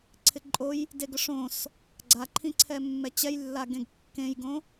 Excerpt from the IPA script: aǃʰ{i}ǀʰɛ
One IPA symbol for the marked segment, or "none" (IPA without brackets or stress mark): ĩ